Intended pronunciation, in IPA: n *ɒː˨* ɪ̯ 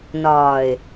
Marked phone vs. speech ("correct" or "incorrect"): correct